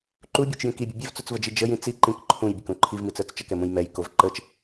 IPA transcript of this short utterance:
ǃ u bʲ ə˞ t͡ʃ j ĩ k i bʲ ə bʲ ɛ v t͡s u t͡s v ə d͡ʒ i d͡ʒ ə j ĩ t͡s i ǃ ĩ k ǃʰ ũ j bʲ ə k ũ ǃʰ i v m i t͡s ə˞ t͡s t͡ʃ ə k ɛ m ũ j m ɛ j k o v ǃ ə t͡ʃ

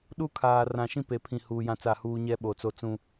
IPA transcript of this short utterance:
ɗ u˦ kʰ aː˨ r ã˨ ʃ ĩ˦ p e˨ pʰ ĩ˨ h uː˨ j ã˦ t͡s a˦˨ h uː˦ ɲ ɛ˦ ɓ o˨ t͡s o˦ t͡s ũ˦

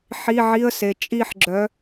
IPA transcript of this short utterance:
ħ i˧˥˧ ʕ i˧˥˧ ə̯ s e˨ t͡ʃʼ i˥˧ ħ ɡ͡ǁ œ˨˥

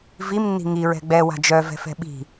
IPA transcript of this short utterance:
v i m nː i̤ ŋ i ɹ ɛ̤ ɡ͡b ɛ w a̤ d͡ʒ œ v ɛ̤ f ɛ̤ ɓ i̤

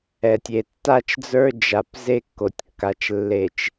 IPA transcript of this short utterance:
ɛ˨ tʲ e˨ tː a˦ t͡ʃ d͡z ə˞˦ d͡ʒ a˨ p z e˦ kː o˨ tʲ kː a˨ t͡ʃ lː e˨ t͡ʃ

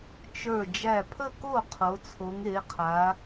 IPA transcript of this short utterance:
t͡ʃ ə˞˧˩ d͡ʒ æ˧˩ pʰ ə˥˩ k o˥˩ qʰ o˩˧ t͡sʰ o˩˧ ŋ e˩˧ qʰ a˩˧

